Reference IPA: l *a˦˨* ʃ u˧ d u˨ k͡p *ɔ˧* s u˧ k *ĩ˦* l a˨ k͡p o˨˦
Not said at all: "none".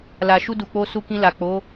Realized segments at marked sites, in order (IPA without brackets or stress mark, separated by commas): a˨, o˧, ĩ˧